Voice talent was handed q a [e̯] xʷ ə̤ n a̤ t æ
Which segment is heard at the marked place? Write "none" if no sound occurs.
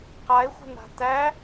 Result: e̯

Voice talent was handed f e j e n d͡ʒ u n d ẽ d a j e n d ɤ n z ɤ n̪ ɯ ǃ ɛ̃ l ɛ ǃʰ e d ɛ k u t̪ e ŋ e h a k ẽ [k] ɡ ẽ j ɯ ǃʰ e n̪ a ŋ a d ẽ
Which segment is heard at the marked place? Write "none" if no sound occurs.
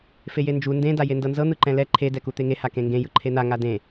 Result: ŋ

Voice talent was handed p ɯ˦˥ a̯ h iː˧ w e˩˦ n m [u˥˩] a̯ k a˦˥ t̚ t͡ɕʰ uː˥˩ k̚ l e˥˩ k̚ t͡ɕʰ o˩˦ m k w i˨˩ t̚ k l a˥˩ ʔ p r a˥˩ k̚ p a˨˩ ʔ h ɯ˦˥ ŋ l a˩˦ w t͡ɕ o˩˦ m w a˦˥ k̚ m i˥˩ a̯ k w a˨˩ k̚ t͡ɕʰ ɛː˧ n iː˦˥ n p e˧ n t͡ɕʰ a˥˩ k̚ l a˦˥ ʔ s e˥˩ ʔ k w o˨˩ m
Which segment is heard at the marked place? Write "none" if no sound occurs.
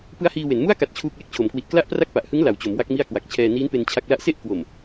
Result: u˥˩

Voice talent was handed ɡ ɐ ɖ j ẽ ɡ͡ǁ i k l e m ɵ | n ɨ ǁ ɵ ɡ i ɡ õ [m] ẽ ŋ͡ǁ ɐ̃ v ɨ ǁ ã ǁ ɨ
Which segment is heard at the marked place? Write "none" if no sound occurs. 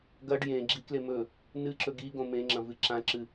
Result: m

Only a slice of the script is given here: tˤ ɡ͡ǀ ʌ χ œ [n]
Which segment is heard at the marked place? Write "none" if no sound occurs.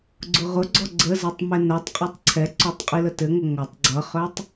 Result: tˤ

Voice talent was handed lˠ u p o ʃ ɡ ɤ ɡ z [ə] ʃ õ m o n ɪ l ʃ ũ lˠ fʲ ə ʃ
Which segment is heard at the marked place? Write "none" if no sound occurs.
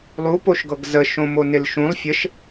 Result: ə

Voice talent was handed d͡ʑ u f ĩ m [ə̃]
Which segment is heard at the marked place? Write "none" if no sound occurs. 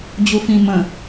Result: ə̃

